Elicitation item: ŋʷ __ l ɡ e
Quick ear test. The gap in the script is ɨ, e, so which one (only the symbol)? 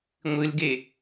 ɨ